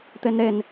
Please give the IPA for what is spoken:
t̪enɾen

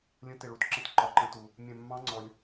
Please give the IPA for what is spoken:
lʲə̃˦˥tɪ˧ɭu˧tǁə̃˦˥t ǃɒ˧ǃə̃˦˥tu˧ | mʲɛ̃˧mːɑ̃˦˥ ŋ͡ǀɔ˧lʲ

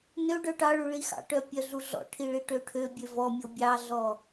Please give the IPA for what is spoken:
nø ɖœʈɑɭʉ ɭixɑ̰ʈœ pʲœɮuɮɔ̰ʈʰi ɭiʈøʈʰøbʲø vɔmʲo bʲɑɮɔ

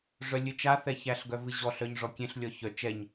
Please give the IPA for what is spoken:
ʐœlʲɨt͡ʃa θɛçæɬ ɡœvɨʑɔ ɬœɲʐɔkʲẽɬ lʲɔçœ t͡ʃɛɲ

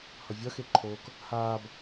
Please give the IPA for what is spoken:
hʌvʲʌxeǃʰoːk | haːb

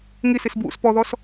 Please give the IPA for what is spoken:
ŋisis bwṵs pɔðɔs

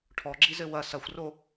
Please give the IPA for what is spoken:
ʈʰɔɡ͡ǁizɘ wɐ sɐxʷro

